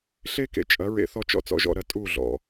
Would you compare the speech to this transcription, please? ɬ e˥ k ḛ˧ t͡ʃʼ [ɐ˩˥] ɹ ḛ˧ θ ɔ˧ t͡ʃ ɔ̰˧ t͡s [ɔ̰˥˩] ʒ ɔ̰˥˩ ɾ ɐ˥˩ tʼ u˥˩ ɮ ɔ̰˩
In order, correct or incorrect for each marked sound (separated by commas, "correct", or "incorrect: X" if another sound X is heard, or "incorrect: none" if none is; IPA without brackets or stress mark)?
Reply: correct, correct